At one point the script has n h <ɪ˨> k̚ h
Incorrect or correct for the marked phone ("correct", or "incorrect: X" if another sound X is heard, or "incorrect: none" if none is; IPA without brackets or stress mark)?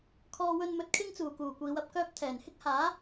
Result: incorrect: ɪ˥